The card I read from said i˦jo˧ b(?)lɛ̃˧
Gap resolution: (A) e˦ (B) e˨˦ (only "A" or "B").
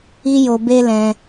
A